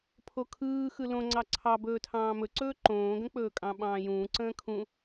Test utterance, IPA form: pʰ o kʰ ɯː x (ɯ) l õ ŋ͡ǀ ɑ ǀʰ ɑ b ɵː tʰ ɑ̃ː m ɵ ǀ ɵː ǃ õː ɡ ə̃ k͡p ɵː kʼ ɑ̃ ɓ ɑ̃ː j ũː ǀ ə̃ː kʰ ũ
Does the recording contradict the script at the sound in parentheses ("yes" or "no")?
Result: no